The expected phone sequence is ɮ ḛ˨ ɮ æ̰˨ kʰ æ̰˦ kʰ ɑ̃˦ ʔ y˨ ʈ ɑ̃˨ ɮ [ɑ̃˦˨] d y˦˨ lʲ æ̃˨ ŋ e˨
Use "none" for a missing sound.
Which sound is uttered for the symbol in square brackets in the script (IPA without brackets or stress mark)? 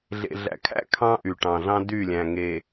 ɑ̃˦